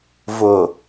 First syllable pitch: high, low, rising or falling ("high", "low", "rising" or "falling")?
low